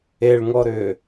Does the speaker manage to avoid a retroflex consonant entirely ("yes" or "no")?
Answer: no